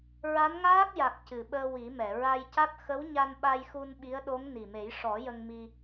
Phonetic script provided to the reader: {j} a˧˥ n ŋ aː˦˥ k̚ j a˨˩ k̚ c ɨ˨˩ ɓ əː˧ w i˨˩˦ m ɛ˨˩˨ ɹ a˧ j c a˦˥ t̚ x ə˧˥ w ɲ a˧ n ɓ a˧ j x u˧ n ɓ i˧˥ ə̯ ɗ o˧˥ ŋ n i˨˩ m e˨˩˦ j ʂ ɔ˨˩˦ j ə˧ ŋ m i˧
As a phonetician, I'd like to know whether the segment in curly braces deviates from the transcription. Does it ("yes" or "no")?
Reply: yes